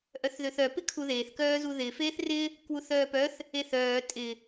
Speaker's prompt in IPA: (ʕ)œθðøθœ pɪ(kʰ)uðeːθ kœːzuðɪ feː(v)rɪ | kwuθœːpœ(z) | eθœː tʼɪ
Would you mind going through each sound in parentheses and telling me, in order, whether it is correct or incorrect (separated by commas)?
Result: incorrect, correct, incorrect, incorrect